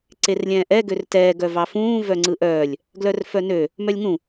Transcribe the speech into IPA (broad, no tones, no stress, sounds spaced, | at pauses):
ǀ e r lʲ ɛ̃ː ʔ ɛ ɡ ø r t ɛː ɡ œ v ɑ f ũː v œ ŋ͡ǀ ɯ ʔ œː lʲ | ɡ l œ r f œ n ø | m œ lʲ ŋ ũ